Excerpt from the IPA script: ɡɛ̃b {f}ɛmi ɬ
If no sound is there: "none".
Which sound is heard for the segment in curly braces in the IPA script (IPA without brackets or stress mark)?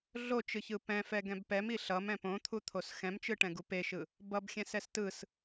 p